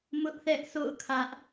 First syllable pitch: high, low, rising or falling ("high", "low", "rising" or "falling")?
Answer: high